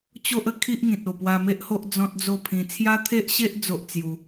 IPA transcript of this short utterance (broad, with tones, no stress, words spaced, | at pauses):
t͡ɕo˦ʔə˧kʰi˦ʔŋĩ˨t̚ o˨˩pwa˧me˦ʔho˦ʔ d͡zɔ̃˦t̚d͡zo˥˧pʰĩ˧ t͡sʰja˦t̪ʰe˦ʔɕe˦ʔ d͡zo˦ʔt͡sju˧